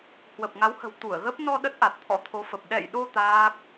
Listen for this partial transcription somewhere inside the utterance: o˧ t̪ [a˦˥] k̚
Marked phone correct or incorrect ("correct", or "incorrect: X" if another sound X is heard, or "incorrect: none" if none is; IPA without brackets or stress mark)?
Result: incorrect: aː˦˥